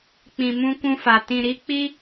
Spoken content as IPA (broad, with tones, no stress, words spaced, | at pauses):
k͡pĩ˨mũ˧kũ˧fa˨ tĩ˨ɾi˧k͡pi˦